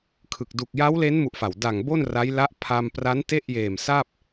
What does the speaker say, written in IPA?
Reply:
kʰɯ˨˩k̚ du˨˩k̚ja˦˥wle˦˥n mu˦˥ʔfa˨˩w da˨˩ŋbo˥˩n ra˦˥jla˦˥ʔpʰa˧m pra˦˥n te˥˩ʔjeː˨˩msa˥˩p̚

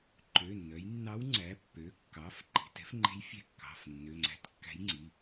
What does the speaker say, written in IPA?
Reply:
ǃø˩˧˩nːœ˩˧jnːɑ˧˥w ŋ͡ǀæ˩˧˩pːø˩˧˩kːɑ˩˧˩f ǃi̤˩˧˩tɛ̤˧˥fŋ͡ǃe̤˧˥j fʲɛ̤˧˥kːɑ̤˩˧˩fnːø˩˧˩ ŋ͡ǀæ̤˧˥tkːæ̤˧˥jŋ͡ǀi˩˧˩

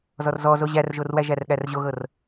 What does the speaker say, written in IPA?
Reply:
zɔrzɔzo ʑærʒorwæʒær ɠærʑoɣɤr

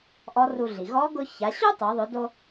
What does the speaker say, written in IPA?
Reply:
ʔɔ˧˥ru˧ɮi˩ ɣɔ˧˥ ɡʊ˧ ça˩˧ɕu˥tˤo˩˧ðˤʊ˩˧ do˧

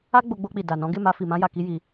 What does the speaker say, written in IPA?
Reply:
a˦ɡ͡bo˧ɡ͡bo˧k͡pi˨ da˨nɔ̃˨˦ ɡe˦˨ma˧fi˨ mã˧ja˨ki˧ ji˧

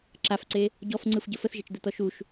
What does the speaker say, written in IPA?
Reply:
ǁafǀe | ɟɔfŋ͡ǀɯfɟə fəθʒet͡ʃd̪ɯt̪ɔ ʃuʃ

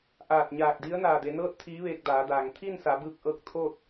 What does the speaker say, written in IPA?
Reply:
ʔaː˧˩t̚ɲaː˧˩k̚ di˧˥ə̯naː˧˩de˩˧nɤː˥˨t̚ t̪ʰiː˧˥ʋeː˧k̚daː˩˧daː˩ŋ t̪ʰiː˥˨nsa˩˧bɯː˧k̚ʔɤː˧k̚ t̪ʰo˥˨t̚

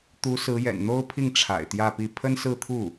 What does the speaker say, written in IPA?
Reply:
t̪u˧˥sɹ̩˧˥jɛ̰˨˩n n̪o˥ʊ̯pʰi˥˩ŋ ʈ͡ʂʰa̰˨˩ɪ̯t̪jä˥˧pi˥˩ pʰə˥nsɹ̩˥˧t̪ʰu˥˩

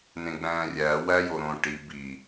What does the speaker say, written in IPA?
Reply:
nẽɡ͡bæ̃ːrʲæː wæjoɾõ ʈi bi

